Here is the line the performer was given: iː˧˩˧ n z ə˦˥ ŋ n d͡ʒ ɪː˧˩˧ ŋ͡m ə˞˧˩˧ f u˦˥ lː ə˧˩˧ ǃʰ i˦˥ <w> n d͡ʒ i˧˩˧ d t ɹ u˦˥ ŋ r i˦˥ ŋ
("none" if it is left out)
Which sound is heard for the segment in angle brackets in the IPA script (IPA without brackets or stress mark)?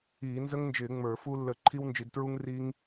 w